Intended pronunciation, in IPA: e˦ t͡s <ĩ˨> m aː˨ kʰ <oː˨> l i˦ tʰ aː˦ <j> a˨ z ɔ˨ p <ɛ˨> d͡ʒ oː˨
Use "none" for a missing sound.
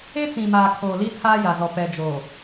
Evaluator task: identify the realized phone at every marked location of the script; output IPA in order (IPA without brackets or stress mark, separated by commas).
ĩ˨, oː˨, j, ɛ˨